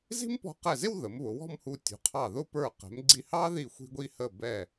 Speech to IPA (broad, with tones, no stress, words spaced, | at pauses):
zi̤˥mpɔ̤˧qɛ˧˩zɪ˥˧w ðə˩˧mβʊ˩˧wɔ̤˥˧mhu˧˩ tʲṳ˩˧qʰɑ˧˩ ðʊ˥˧ pə˞˧˩qɛ̤˩˧mɡ͡ǀi˧hɑ˥ ði˧˩xʷi̤˧ɡʷi˧ hə˧˩bɛ˧˩